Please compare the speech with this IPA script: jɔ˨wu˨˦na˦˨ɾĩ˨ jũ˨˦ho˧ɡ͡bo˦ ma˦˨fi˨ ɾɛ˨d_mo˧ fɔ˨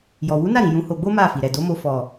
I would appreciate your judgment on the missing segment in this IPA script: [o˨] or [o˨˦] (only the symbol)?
o˨˦